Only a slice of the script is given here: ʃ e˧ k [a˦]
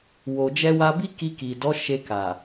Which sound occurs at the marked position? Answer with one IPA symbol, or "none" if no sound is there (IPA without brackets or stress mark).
a˨